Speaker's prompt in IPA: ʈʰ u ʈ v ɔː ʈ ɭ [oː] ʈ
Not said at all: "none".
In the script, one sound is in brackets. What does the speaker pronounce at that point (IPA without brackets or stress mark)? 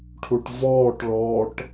ɔː